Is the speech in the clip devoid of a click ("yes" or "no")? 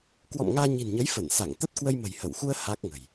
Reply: yes